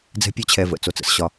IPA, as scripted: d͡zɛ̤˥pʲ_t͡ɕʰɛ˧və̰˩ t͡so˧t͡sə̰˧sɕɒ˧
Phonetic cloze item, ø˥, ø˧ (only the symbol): ø˥